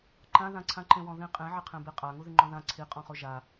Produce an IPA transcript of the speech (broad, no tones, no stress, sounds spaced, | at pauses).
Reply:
ǃ ã ð ã ǀʰ ã ǃ ẽ w ɔ̃ ð ĩ qʼ ẽ ʕ ɪ qʰ ẽ b i qʼ a ŋ u ð i ŋ͡ǃ ɔ̃ ð ã ǀʰ i qʼ ɔ̃ χ o ʒ a